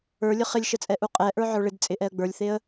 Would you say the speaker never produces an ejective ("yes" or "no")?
no